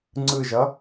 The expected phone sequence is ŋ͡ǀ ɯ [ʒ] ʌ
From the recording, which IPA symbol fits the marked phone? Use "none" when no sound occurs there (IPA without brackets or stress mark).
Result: ʒ